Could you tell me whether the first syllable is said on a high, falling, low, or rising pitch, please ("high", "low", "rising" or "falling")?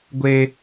high